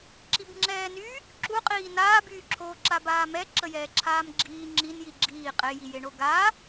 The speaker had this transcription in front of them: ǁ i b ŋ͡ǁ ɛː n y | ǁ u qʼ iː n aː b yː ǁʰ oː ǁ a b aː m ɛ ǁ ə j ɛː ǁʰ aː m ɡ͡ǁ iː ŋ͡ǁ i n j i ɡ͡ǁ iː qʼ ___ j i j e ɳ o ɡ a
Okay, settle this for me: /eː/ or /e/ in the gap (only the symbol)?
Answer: e